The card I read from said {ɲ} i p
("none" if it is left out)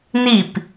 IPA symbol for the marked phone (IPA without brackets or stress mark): n